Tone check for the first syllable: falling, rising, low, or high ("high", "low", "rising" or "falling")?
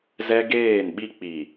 high